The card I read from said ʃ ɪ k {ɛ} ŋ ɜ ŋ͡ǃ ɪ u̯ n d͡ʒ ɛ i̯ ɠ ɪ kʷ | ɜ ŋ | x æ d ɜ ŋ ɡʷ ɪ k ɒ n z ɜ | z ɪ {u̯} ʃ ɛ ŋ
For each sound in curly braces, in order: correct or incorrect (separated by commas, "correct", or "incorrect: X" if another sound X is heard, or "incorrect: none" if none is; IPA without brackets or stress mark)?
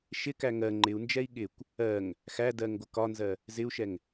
incorrect: æ, correct